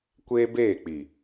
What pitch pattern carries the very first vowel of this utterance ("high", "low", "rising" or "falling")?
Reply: high